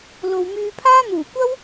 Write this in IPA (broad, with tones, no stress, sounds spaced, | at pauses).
l o˨ w m yː˧ pʰ aː˥ n̪ uː˨˩ kʷ ɐ˥ w